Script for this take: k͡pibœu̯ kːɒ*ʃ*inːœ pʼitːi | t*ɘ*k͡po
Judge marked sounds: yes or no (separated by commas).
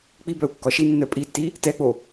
yes, no